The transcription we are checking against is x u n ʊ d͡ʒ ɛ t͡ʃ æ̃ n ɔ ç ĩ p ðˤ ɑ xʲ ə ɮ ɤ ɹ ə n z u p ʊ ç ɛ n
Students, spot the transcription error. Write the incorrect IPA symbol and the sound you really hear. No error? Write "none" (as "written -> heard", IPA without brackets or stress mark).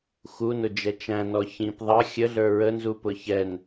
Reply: ɤ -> ə˞